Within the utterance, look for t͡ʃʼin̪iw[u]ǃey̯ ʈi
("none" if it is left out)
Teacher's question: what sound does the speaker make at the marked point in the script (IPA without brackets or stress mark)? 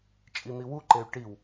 u